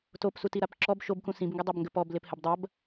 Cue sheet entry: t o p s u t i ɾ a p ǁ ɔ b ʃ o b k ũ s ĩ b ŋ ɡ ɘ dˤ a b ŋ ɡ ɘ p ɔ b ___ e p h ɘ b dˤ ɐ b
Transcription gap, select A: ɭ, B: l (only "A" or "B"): B